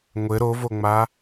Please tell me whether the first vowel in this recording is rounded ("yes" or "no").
no